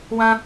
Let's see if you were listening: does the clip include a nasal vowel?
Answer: yes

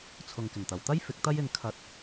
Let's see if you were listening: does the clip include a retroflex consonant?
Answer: no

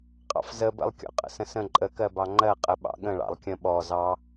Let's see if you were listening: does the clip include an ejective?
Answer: yes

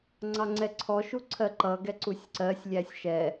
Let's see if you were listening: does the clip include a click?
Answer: yes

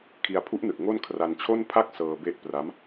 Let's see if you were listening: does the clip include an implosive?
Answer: no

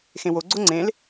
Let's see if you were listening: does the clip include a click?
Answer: yes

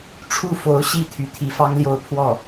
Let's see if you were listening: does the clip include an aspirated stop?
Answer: yes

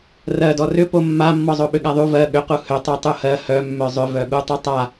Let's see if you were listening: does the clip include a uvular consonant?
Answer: yes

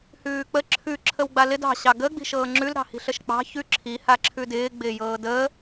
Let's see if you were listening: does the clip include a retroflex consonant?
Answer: no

